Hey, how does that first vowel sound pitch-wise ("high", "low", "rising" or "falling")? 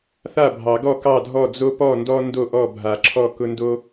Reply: falling